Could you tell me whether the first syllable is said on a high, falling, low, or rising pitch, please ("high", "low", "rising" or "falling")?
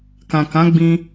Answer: low